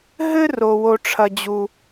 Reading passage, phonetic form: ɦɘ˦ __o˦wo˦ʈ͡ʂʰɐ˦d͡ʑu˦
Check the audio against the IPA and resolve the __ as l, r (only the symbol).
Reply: r